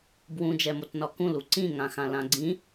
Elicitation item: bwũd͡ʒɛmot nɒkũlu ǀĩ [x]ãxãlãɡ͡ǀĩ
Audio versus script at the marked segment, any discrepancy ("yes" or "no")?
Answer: yes